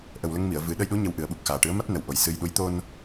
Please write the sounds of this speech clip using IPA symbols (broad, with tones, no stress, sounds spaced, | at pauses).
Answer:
ʔ ə˨˩ w l ə˧ ŋ m i˨˩˨ ə̯ v ɨ˨˩˦ ɗ ə˧ j ɗ u˧˥ ɲ ə˧˥ w ʔ ɨ˨˩˦ ə̯ ɓ u˨˩ k̚ x aː˨˩ ʈ ɨ˧˥ ə̯ m a˦˥ t̚ n ə˨˩ w ʔ o˨˩ j s ɨ˧ j ɗ u˧˥ j t̪ o˧ n